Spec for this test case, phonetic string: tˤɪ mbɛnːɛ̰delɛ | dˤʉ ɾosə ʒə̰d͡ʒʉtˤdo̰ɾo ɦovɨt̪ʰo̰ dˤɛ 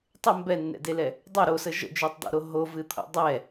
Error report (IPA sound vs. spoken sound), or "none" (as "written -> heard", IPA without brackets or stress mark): none